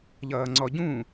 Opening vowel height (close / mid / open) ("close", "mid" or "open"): mid